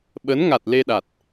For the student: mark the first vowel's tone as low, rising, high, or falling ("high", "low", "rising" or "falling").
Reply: rising